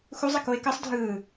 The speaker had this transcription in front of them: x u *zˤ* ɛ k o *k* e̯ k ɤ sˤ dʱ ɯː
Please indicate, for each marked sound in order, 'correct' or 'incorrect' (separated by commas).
correct, incorrect